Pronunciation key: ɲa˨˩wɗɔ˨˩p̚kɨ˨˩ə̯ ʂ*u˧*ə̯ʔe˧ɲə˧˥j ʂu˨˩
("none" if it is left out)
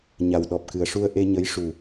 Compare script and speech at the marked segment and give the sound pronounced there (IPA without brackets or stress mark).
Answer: u˧